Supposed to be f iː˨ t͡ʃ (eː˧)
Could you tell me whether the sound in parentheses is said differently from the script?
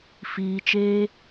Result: no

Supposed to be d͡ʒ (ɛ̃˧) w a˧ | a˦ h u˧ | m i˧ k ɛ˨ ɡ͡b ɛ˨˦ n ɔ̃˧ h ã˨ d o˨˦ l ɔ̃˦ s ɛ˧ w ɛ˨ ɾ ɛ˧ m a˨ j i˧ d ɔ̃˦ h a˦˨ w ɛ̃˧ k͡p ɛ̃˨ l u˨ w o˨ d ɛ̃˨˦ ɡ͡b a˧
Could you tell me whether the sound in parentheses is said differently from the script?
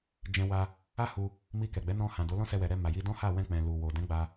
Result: no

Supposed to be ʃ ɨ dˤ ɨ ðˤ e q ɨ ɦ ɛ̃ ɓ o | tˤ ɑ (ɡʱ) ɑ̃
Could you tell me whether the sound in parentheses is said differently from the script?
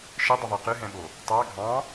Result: no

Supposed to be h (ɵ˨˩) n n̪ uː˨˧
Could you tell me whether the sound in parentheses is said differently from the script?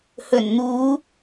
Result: no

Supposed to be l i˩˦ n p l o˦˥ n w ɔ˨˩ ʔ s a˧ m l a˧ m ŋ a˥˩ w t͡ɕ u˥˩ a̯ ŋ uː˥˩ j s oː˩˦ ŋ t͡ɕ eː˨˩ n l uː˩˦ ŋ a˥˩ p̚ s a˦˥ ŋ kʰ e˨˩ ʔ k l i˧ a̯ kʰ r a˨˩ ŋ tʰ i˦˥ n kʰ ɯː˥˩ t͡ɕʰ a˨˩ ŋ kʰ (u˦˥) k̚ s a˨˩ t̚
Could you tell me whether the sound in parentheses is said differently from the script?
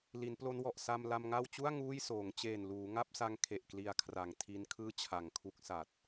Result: no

